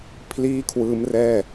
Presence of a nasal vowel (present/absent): absent